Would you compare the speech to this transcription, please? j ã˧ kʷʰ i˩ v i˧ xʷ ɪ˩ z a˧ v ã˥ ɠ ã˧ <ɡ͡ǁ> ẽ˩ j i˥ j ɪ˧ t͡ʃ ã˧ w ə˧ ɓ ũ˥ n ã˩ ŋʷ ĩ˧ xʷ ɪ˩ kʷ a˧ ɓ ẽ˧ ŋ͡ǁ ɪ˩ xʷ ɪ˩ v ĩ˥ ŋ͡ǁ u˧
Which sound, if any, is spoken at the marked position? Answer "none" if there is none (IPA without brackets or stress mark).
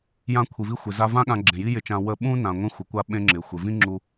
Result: ɡ͡ǁ